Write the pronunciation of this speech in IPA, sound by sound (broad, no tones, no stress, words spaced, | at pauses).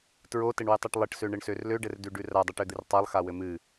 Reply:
tɹotɘɳwɨtˤɨʈ lˠɘʈsøɳɘɳsør løɖɘrdʉɖʉ radˤɨʈød̪ɨr tˤalˠxawɘ mɨ